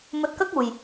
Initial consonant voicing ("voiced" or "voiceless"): voiced